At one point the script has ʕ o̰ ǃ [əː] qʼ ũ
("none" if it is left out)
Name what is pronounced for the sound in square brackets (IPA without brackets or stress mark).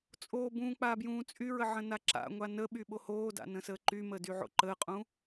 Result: əː